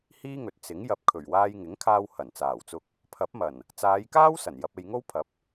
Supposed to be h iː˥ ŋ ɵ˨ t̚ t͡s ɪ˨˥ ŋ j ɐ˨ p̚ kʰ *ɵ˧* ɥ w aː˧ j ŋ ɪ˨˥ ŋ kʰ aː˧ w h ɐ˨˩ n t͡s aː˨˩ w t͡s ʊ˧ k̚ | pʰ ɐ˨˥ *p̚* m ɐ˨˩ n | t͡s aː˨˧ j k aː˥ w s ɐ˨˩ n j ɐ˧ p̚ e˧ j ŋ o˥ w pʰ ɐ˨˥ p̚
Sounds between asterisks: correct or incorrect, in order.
incorrect: ɵ˨˩, correct

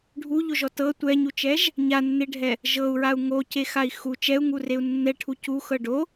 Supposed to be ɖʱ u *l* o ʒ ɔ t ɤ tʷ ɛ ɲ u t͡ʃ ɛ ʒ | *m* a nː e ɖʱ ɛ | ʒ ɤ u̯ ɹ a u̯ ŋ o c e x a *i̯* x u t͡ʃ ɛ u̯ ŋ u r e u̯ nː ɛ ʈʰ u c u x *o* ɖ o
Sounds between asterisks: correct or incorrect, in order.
incorrect: ʎ, incorrect: ɲ, correct, incorrect: ɤ

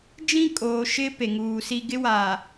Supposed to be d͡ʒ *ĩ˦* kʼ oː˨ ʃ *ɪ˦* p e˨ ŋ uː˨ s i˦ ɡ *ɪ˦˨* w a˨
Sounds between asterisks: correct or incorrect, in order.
correct, correct, incorrect: ɪ˦

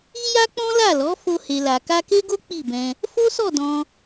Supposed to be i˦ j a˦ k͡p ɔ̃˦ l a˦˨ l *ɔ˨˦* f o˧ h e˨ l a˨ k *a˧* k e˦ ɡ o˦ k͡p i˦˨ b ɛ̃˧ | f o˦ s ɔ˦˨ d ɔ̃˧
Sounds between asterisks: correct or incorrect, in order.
correct, correct

